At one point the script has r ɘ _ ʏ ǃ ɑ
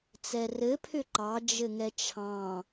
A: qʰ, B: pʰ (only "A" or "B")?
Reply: B